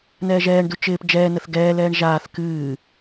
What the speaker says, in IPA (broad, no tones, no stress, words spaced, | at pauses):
nɛːʒɛːɳdu t͡ʃɪːp d͡ʒɛːnəθ ɡɛːlɛːɳ ʒaːθ kɨː